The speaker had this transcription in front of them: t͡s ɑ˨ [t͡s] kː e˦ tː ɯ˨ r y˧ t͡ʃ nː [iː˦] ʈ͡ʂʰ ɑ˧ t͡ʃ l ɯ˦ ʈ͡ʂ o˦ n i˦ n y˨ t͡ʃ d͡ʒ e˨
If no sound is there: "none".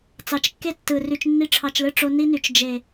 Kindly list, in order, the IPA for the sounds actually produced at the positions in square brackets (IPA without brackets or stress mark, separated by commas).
t͡ʃ, i˦